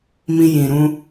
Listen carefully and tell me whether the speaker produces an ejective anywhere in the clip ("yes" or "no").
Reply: no